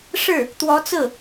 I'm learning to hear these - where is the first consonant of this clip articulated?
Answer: retroflex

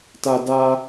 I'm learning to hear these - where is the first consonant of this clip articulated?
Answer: tongue tip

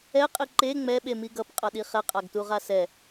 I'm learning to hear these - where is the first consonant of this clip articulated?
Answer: uvula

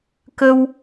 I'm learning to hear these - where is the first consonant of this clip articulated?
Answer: velum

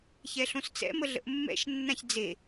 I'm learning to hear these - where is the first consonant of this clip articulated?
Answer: palate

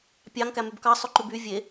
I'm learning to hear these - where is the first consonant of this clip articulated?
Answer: lips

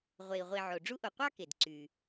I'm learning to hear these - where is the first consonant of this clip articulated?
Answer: uvula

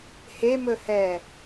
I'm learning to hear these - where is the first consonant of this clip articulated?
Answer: throat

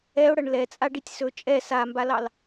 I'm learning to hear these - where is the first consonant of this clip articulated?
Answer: retroflex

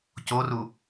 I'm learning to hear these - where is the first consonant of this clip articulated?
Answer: palate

